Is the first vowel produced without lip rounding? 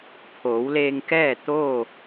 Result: no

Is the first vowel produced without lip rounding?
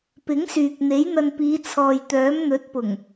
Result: yes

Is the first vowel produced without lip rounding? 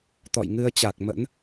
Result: no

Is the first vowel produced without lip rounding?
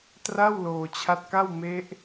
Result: yes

